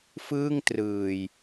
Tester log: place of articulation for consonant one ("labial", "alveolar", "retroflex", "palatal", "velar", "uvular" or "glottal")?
labial